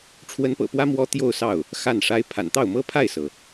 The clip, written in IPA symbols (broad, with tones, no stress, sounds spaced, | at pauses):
ʈ͡ʂʰ w ə˧˥ n p ɤ̰˨˩ p w ä˥ m w ɔ˥ t̪ j o˥˧ ʊ̯ s ɑ˥˩ ʊ̯ | x a˥˩ n ʂ a˥ ɪ̯ pʰ a̰˨˩ n t̪ ɑ˥˩ ʊ̯ m ɤ˥ pʰ a˥˩ ɪ̯ s ɤ˩